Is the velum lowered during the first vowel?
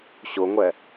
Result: no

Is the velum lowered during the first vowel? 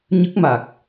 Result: no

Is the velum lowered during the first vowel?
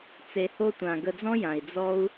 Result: no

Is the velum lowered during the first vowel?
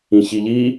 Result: yes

